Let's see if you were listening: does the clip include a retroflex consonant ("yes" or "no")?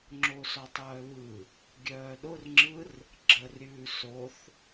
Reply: no